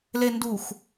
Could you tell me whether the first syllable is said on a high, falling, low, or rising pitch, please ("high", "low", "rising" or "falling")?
low